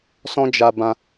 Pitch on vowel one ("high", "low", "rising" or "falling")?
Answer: high